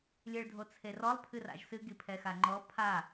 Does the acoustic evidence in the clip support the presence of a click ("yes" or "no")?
yes